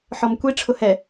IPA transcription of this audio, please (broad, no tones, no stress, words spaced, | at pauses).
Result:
ħɔmkʷi ʈ͡ʂʰʊhɛ